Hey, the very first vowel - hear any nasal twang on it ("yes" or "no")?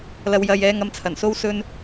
no